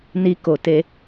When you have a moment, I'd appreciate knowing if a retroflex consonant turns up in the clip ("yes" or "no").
no